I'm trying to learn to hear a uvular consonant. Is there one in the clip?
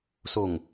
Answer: no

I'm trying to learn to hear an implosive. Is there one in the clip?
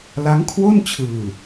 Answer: no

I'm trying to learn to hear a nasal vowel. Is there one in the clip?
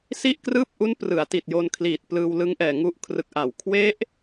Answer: no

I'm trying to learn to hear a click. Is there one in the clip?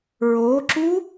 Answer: yes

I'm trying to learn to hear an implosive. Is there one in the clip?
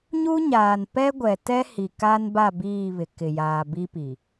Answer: no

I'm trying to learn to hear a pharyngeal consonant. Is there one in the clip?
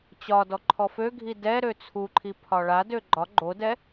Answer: no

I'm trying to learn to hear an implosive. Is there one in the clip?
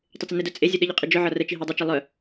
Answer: yes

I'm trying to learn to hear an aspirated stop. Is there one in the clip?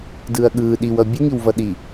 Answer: no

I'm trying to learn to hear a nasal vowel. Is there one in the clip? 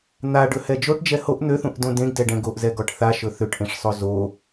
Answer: yes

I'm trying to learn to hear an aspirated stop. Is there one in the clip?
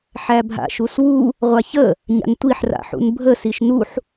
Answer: no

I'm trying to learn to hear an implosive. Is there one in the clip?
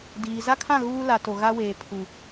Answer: no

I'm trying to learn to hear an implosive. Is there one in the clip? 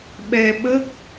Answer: yes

